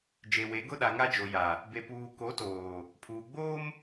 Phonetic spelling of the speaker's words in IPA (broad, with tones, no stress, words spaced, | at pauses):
d͡ʒe˨we˨˦ ɡʊ˦ɗa˨ŋa˦d͡ʒo˨ ja˨ | be˨puː˨ ko˨˦toː˨ | pʰuː˨ ɡ͡boː˦m